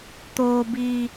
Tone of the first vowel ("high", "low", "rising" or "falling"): high